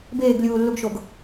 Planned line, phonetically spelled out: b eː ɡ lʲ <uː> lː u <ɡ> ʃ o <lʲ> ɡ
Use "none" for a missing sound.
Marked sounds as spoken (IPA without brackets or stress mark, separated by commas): uː, ɡ, none